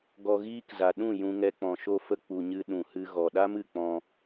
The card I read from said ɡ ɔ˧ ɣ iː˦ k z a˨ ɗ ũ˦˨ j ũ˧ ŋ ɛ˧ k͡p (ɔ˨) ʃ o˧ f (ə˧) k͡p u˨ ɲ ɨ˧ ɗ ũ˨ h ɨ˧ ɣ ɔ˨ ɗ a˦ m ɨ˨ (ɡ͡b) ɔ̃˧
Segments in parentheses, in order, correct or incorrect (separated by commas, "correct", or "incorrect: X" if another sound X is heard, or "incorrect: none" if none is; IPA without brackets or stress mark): incorrect: ɔ̃˨, correct, incorrect: k͡p